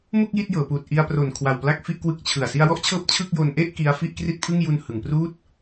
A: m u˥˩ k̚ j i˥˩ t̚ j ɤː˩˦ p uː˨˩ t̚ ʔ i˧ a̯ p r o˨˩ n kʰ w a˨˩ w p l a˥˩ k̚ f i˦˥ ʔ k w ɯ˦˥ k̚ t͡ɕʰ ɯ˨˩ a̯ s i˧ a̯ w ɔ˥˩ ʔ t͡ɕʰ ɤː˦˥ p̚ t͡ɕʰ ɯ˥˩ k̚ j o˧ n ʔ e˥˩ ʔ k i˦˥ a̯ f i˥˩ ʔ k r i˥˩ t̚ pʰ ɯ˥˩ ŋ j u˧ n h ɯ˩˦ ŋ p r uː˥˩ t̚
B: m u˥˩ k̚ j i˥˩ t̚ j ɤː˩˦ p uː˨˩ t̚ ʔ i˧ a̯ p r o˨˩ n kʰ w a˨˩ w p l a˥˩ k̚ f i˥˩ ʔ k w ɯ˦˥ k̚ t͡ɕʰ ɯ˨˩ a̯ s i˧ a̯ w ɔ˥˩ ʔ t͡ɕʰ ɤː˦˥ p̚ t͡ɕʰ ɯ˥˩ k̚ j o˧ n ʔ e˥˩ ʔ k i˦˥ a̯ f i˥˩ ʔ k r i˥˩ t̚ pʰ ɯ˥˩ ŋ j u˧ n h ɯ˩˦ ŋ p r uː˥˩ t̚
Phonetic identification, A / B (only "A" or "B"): B